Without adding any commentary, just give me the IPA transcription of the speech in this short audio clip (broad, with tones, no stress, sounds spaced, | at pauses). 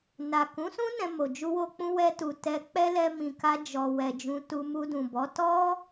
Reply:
n a˨ k ũ˨˦ s ũ˦ n ɛ̃˧ m o˨ d͡ʒ u˧ w o˧ k͡p ũ˧ w ɛ˧ t u˨ t ɛ˧ k͡p ɛ˦ l ɛ˧ m ĩ˨ k a˧ d͡ʒ ɔ˨ w ɛ˨ d͡ʒ ũ˨ t u˧ m u˧ d ũ˨ b ɔ˨˦ t ɔ˦